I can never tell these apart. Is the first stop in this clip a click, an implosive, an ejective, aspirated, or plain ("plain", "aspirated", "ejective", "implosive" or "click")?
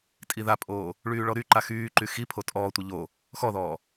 ejective